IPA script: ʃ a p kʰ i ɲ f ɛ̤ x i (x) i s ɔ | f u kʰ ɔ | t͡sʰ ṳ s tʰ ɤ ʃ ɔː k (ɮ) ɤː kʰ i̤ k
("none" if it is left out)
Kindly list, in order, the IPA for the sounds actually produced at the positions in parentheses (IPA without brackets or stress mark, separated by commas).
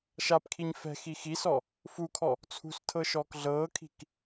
x, ɮ